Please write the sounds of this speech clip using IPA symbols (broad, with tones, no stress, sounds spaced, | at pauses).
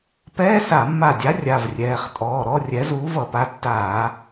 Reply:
p ɛː˧˥˧ s a˧˩˧ mː a˧˩ dʲ a˨˥ rʲ a˩˧˩ v rʲ ɛː˩˧˩ χ tʼ ɔː˩˧˩ ɾ ɔ˧˥˧ rʲ ɛ˨˥ z uː˨˥ v ʌ˧˩˧ p a˩˧˩ tː aː˧˩˧